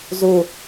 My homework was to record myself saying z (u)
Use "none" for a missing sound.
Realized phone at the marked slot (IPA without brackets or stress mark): u